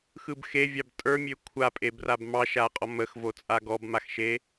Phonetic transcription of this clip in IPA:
x ɯ b x e vʲ ɑ b tʼ ə˞ mʲ ø kʷʰ a pʼ e b r a b m ɑ ʃ a qʼ ɔ m ə x v o t͡sʼ a ɡ ɔ b m a x ʃ e

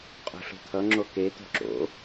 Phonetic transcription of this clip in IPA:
qʼ ṳ ɬ ṳ t̪ʰ ʌ ŋ͡ǁ o k e t̪ o̤ ǁ o̰

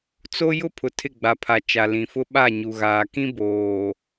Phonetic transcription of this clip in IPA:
t͡s o˦ j ʊ˦ pʰ ʊ˨ tʰ ɪ˦˨ ɡ͡b a˨ pʰ a˨ t͡ʃ a˨ l ĩ˨ f ʊ˦ ɓ a˦˨ ɲ u˨ ɣ aː˨ k ĩ˦ b oː˨

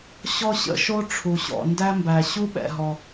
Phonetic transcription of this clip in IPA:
ɕ ɔ˥ ɕ ə̰˦ ʃ o˥ ʈ͡ʂʰ u˩ ɕ ɔ̰˩ n d æ˦ m b æ˩ ɕ u˥ ɓ ɛ̰˩ ɦ ɔ˩

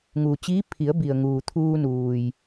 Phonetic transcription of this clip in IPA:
ŋ uː˩ t͡ɕ iː˧˥ pʰ i˩˧ ə̯ b i˩ ə̯ ŋ uː˩ t̪ʰ uː˧ n uː˩ j

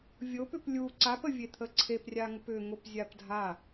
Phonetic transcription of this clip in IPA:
vʲ o p ʏ p lʲ u ǀ a p ə vʲ e t̪ʰ ə ǀʰ e p rʲ a ŋ ʊ p ʏ ŋ ʊ p zʲ a p dʱ a

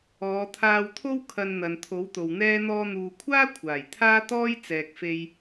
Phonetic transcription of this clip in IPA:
ɔː˨˧ t̪ʰ aː˧ w t̪ʰ o˥ w kʰ ɐ˧ n n̪ ɐ˨ n t̪ʰ o˨˥ w t̪ o˨ w n̪ ɛː˥ n̪ ɔː˧ n̪ uː˨ kʷʰ aː˥ kʷʰ aː˨˩ j t̪ʰ aː˥ t̪ ɔː˥ j t͡s ɛː˨ k̚ f e˧ j

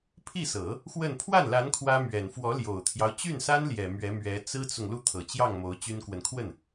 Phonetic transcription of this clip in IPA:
pʰ i˥˩ s ɤ˨˩˦ | x w ə˥˧ n pʰ w a˥˩ n l a˧˥ n kʰ w ä˥ m ɥ ɛ˨˩ n f w ɔ˧˥ l j o˨˩ ʊ̯ t̪ʰ j ɑ˦ ʊ̯ t͡ɕ y˥˩ n s a˥ n l j ɛ˨˩ m ɥ ɛ˧˥ m ɥ ɛ˧˥ t͡s ɹ̩˥ t͡s ʊ˨ ŋ l u˥˩ t̪ʰ ɤ˨˩ t͡ɕ j ɑ˥˩ ŋ m o˧˥ ʊ̯ t͡ɕ y˥ n k w ə˨ n kʰ w ə˥˩ n

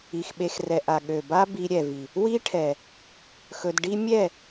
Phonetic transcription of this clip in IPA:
i˨ x ɓ e˧ x r ɛ˨ ʔ a˨ ɠ ø˨ b a˦ b i˧ ɾʲ ɛ˨ v i˨ | w i˦ ʈʰ ɛ˨ | x ɵ˧ d ɖ i˦ mʲ ɛ˦˨

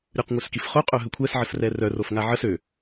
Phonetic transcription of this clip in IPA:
ɾʲ u q ŋʷ œ s k i f χ o qʼ œ ɦ ə kʷʰ ɛ s ʕ ə s r ɛ r œ r o f ŋ a ʕ ə s ø

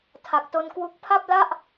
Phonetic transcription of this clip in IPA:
tʰ a˨˩ k̚ t o˧ n k w u˦˥ k̚ pʰ a˥˩ p̚ l a˥˩ ʔ

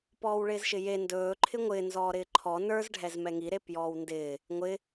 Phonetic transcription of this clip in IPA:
p ɔː w ɭ ɪː z ʃ ɪ j e n d ɵː ǃʰ ɪ ŋʷ ɪː n z ɔː ɾ ɪː ǃʰ ɔ n ə˞ z ɖʱ ɛ z m ɛ ŋ i ɾ e p j ɔː w n d ɪː | ŋʷ ɪ

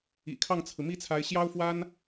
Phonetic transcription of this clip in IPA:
ḭ˨˩ kʰ ɑ˥˩ ŋ t͡sʰ ɹ̩˩ m i˥ t͡sʰ a˧˥ ɪ̯ ɕ j ɑ˥ ʊ̯ f w a˥ n

